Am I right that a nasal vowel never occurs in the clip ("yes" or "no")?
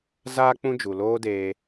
no